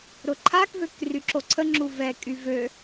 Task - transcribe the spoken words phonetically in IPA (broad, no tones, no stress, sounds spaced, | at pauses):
ɾ ʊ ǃʰ a k v ø k r y ǁ o ǀʰ ə ŋ͡ǁ u v ɛ kʼ y v ø